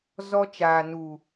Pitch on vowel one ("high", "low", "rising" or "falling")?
high